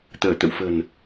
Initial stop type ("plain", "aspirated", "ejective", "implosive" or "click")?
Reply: plain